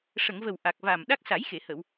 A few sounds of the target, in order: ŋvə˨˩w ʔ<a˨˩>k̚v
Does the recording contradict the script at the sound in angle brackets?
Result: no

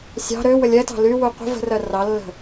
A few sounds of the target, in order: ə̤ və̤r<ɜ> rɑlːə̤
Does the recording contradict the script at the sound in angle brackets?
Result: no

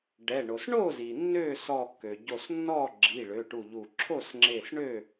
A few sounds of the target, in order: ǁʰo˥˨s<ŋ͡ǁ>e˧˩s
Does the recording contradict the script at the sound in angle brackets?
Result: no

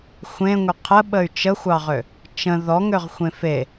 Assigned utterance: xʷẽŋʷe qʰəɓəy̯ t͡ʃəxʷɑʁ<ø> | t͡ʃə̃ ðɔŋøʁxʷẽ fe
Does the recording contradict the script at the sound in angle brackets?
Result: no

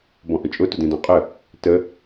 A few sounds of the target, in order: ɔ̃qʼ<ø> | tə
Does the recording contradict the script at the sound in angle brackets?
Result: yes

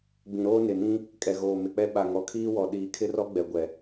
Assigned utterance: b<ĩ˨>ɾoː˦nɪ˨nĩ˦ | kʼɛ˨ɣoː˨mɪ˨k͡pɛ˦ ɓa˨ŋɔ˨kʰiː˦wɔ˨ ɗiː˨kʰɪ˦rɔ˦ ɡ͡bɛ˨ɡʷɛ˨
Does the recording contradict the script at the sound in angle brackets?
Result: no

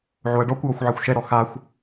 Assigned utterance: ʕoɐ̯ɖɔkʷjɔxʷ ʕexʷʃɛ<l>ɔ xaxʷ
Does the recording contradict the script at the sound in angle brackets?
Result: yes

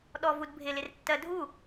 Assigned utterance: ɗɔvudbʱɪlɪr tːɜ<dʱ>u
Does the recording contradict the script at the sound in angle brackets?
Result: no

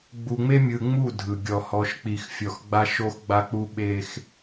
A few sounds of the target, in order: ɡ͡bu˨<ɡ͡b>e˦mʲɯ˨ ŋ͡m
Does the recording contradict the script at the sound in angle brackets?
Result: yes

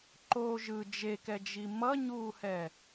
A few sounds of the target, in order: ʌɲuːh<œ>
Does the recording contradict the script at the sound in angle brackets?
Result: yes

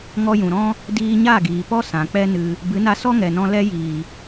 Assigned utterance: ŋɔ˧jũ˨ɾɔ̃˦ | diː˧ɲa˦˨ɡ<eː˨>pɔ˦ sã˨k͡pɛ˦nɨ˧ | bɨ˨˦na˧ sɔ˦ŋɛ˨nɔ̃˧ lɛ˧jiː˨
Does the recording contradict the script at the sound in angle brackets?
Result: yes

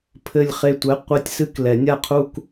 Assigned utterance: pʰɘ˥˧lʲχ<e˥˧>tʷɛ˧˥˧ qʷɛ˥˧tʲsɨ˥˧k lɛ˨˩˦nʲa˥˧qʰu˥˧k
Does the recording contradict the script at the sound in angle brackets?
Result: no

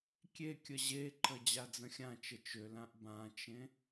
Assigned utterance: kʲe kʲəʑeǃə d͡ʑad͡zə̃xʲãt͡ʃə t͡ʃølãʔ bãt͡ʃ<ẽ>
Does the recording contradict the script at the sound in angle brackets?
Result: no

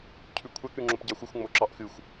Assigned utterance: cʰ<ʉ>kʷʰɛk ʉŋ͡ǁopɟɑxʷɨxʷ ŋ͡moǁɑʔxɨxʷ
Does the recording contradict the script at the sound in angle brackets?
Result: no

